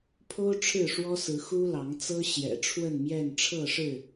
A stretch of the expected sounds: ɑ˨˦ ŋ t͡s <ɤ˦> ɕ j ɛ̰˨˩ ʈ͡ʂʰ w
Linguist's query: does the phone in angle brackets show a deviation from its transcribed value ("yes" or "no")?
no